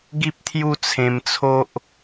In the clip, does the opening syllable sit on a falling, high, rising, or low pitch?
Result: high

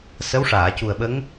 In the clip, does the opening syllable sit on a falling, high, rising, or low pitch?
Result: rising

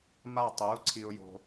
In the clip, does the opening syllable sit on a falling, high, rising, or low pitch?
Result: falling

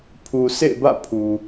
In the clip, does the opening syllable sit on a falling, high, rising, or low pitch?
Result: low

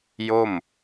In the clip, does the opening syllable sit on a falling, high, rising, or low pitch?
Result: falling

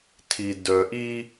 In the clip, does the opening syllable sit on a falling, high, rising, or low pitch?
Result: low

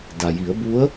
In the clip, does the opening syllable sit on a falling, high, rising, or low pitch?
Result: low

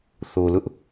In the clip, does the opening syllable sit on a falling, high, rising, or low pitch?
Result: low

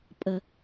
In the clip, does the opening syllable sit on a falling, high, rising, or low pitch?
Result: low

